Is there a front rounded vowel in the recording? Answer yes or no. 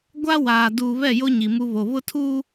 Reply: no